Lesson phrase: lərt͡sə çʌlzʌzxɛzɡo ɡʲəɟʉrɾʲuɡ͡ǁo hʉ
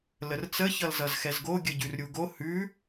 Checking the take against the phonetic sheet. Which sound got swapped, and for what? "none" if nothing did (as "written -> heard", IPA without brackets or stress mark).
ɡ͡ǁ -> ɡ